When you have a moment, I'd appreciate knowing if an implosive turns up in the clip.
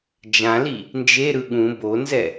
yes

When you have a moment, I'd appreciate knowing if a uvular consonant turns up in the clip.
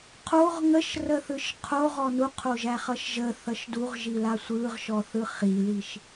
yes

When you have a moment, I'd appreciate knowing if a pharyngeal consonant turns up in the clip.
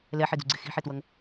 yes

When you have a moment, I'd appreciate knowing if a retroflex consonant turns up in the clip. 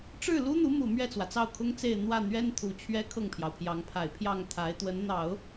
yes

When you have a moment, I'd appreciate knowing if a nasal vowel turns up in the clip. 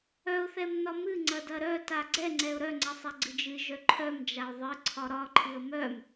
no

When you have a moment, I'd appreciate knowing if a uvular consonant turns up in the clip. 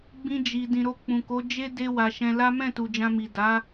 no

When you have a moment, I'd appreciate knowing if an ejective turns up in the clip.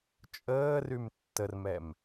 yes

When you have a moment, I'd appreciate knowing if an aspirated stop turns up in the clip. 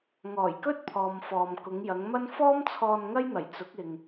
yes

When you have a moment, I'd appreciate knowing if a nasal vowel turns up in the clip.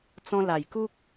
yes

